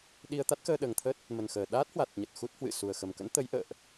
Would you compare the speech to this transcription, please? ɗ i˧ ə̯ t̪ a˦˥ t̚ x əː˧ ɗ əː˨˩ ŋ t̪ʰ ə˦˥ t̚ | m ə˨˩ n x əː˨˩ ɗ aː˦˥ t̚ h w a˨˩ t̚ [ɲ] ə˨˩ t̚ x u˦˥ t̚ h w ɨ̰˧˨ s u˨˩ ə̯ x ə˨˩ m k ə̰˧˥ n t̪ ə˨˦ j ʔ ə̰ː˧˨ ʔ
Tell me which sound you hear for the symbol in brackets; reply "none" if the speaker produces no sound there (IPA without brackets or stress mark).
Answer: ɲ